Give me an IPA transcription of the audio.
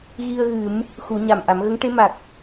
ɣi˧ə̯ɣɨ˨˩˦m | xu˨˩˦ɲa˨˩mʔa˨˩˦m ɣə˧˥ŋʈe˧˥ ma˨˩k̚

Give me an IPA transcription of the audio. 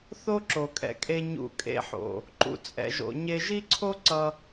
θo˦ǁo˨kʼɛ̰˧kʼe˧ ɲṵ˦˨kʼḛ˦ħo̰˨ | ǃṵ˧t͡sʼɛ̰˧ʒo̰˧ɲe˦ ʒi˦ǀʰo˦ ǀʌ˦

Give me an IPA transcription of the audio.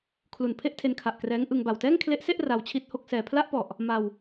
kʰlu˨˩n pʰe˥˩ʔtʰe˧nkʰa˨˩ʔ krɛː˦˥ŋʔɯ˧ŋ ba˨˩wtɛː˥˩ŋkʰle˦˥ʔse˥˩ʔ ra˧wt͡ɕʰi˥˩t̚ho˥˩k̚sɛː˧ pʰla˥˩ʔpɔ˨˩ʔ | ma˧w

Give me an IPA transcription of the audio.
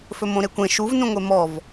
fɵmõɾekʷẽ ʃuvnũŋʷe mɔv

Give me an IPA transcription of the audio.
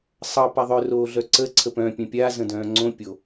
sˤʌ paðˤœ roːɮœǀə ǀʰəpœ̃ pʲœ̃pʲa zə̃dœ̃ːŋ͡ǀõ pʲo

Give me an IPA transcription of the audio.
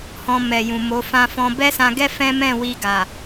hɔ̃˧mɛ˨jũ˨mo˨˦ fã˧fɔ̃˧ bɛ˦sã˧ɡɛ˦ fɛ̃˦mɛ̃˦˨wi˧ ɡa˨

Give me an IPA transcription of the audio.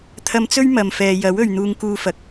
t̪ʰɐ˧mt͡sɵ˥ɥ mɐ˨mfɛː˨jɐ˨˥w ɵ˨ɥn̪uː˧ŋkuː˧fɐ˨k̚

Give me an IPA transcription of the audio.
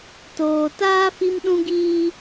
toː˨taː˦ fi˦mɗũ˦ɡiː˦

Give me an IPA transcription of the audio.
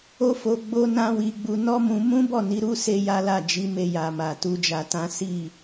o˦fo˧ ɡ͡bo˦nã˦wi˧ɡ͡bu˧ nɔ˦mũ˧ mũ˦bɔ˦˨ ni˨˦ɾu˦ se˦ja˦la˦˨ d͡ʒi˨˦me˧ja˨ma˨ tu˧d͡ʒa˧tã˦ si˦˨

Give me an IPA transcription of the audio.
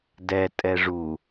dɛ tʼɛʐu

